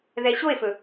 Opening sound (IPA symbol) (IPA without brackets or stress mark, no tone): ð